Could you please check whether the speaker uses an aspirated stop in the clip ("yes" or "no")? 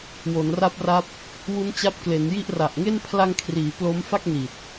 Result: yes